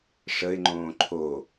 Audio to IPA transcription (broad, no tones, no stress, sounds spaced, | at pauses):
ʂ ə ɪ̯ ŋ͡ǃ õː ǃʰ o